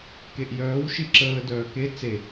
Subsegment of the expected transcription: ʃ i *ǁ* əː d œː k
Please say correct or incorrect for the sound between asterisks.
correct